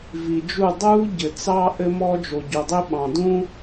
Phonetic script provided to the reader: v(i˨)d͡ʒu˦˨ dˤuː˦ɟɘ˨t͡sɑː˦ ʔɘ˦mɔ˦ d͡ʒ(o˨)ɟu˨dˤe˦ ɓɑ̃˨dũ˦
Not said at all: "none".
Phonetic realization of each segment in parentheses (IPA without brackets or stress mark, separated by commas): i˨, o˨